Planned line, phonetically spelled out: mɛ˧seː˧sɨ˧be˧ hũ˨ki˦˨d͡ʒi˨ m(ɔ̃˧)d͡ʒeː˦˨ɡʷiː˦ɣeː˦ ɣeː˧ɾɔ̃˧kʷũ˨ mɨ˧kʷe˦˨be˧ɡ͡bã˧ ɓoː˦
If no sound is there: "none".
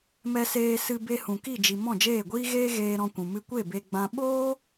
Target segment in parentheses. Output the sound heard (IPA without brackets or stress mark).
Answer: ɔ̃˦˨